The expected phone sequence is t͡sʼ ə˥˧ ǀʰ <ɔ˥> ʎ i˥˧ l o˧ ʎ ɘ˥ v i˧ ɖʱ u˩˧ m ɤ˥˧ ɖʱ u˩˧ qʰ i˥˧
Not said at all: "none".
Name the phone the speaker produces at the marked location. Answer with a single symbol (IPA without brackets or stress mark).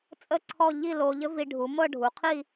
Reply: ɔ˥˧